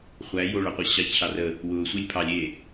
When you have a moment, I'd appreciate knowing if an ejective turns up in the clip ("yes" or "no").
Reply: no